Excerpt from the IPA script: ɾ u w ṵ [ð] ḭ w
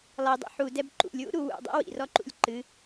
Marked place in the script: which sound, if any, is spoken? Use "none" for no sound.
dˤ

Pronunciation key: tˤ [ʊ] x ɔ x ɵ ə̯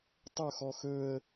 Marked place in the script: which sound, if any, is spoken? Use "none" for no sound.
ʊ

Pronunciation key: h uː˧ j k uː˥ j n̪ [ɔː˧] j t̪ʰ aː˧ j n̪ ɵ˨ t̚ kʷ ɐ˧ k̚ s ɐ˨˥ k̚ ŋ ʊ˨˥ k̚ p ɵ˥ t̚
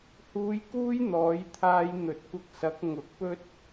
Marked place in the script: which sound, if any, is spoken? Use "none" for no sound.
ɔː˨˥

